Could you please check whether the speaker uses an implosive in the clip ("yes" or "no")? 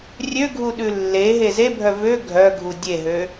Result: yes